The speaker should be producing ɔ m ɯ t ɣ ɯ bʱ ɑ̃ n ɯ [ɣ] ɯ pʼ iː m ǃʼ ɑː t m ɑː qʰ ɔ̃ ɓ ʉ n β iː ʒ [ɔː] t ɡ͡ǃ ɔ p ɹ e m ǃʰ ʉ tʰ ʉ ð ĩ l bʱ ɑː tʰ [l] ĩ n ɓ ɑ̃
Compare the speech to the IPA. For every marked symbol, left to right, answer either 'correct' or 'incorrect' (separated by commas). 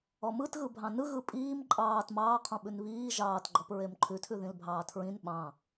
correct, incorrect, incorrect